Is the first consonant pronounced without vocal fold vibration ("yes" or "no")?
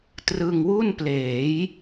yes